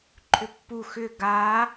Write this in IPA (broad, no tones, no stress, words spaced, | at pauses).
ǃʰʏpːu xʏ ɡa